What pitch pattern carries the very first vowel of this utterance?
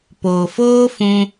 low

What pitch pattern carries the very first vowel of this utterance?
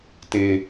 high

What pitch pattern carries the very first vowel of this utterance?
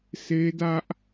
high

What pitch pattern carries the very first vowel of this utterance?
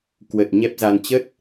low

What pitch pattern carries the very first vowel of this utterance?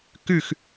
falling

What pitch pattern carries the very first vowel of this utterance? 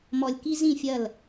low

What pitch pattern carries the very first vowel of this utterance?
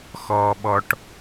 low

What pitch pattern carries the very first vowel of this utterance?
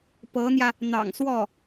rising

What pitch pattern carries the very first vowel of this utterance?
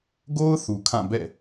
high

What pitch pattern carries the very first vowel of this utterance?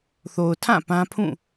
low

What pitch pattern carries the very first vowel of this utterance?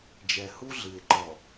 low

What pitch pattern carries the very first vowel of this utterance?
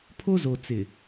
high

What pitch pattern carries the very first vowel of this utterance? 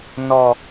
low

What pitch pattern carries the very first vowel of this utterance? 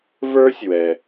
high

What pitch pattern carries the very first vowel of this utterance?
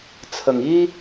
low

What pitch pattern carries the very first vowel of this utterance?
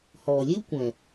low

